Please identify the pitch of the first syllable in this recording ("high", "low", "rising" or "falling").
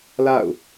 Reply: falling